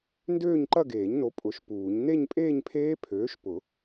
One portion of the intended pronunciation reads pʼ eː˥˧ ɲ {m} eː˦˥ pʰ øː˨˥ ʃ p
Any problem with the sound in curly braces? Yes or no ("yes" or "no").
yes